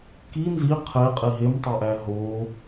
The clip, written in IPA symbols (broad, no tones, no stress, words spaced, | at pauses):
ki nzi qʰeqʼi ɦemtˤoʔæ ɦo